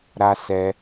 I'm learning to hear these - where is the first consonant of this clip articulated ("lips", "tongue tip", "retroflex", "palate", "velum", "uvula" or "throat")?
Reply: tongue tip